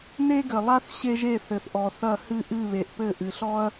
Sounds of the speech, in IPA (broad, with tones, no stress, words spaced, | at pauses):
ne˥ɡɘ˨lˠa˥θ ɕe˥ʒe˥˩ θɘ˨θʔɔ˨θɐ˥˩ hɨ˥˩ʔɨ˥˩βe˨ʔpɘ˥˩ ʔɨ˨ɬɔ˥ɐ̯